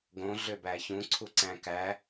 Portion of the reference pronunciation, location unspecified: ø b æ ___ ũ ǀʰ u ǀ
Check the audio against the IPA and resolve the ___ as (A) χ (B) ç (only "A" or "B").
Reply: B